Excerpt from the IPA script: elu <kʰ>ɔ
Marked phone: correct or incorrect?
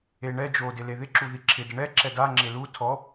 incorrect: tʰ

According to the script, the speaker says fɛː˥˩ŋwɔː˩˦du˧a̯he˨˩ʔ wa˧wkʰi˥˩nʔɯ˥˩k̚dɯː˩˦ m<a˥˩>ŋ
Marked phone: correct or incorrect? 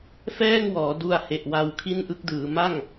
correct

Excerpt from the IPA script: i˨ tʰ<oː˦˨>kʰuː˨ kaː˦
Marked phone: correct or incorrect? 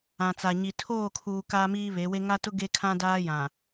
correct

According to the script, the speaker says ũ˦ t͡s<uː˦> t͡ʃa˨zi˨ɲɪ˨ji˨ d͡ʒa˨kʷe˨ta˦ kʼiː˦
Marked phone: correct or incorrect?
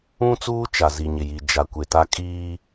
correct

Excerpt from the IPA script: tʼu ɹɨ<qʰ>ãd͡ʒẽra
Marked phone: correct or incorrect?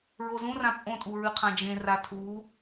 correct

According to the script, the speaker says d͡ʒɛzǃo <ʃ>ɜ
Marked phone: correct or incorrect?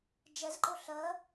incorrect: ɬ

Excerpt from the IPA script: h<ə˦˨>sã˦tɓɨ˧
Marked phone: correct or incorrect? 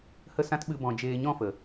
correct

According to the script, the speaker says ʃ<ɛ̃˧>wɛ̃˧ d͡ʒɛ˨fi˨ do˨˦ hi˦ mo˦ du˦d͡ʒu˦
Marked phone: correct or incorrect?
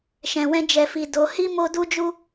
incorrect: ɛ̃˨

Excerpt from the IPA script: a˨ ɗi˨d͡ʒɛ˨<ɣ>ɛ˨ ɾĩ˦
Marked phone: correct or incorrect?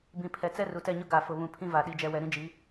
incorrect: w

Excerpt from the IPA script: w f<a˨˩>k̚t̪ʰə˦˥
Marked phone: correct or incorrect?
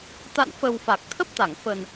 correct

